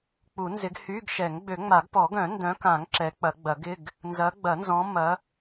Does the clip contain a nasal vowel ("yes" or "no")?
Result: yes